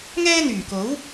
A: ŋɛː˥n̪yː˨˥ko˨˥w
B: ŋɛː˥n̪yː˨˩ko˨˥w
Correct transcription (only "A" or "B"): B